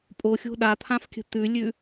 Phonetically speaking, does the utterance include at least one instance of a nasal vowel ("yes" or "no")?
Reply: yes